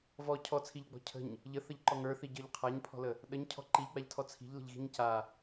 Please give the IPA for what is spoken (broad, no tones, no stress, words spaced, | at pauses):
vɔ cʰɔt͡sʰiʎɡ͡bɔ̤ cʰə̤ɲ | ʎəθəʎǃɔ ŋə˞θiɟə˞ʎ qʰaɲpʰɔ̤lə | ɗəɲcʰɔ̤ ǃiʎɡ͡baʎtʰɔ t͡sʰi̤ʎlə̤ʎɣi̤ɲ ca